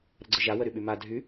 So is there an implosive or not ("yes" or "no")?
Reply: yes